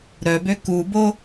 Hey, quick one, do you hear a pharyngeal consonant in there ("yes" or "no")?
no